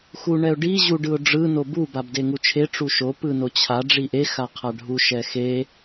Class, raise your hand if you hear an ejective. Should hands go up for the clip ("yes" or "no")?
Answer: no